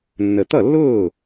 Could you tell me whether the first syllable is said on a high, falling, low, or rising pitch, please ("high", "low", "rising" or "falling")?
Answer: low